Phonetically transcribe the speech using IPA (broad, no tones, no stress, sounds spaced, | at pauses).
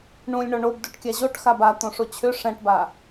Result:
ɳ ũ lʲ ɳ ɔ ɳ o b d u ʈ kʲ a ʑ o ʈ x a b a t̪ õ ʂ o t͡ɕʰ ʏ ʂ ɛ̃ ʈ b a